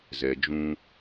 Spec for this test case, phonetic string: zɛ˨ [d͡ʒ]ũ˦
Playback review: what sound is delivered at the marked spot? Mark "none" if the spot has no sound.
d͡ʒ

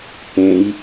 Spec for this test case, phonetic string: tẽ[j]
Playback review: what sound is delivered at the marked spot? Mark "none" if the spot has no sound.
j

